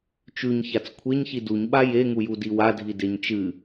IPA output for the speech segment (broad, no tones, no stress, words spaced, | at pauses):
t͡ʃʉɲçat͡s kʷʰeɲçi duɲɓa jeŋujudi wadʱideɲ t͡ʃɨ